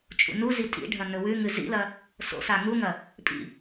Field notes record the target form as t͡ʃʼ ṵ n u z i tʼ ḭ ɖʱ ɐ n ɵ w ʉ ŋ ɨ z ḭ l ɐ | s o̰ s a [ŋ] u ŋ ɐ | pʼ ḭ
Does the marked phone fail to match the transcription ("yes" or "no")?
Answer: no